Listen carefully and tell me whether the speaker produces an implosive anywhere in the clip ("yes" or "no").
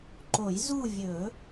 no